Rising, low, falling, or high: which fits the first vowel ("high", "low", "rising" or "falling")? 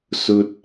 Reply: high